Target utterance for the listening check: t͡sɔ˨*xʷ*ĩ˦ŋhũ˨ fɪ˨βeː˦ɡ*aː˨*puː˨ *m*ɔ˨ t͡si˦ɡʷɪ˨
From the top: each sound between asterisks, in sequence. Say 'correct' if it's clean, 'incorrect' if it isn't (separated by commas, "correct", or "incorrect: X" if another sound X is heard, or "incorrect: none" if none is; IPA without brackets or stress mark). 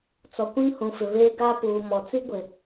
incorrect: kʷ, incorrect: aː˦, correct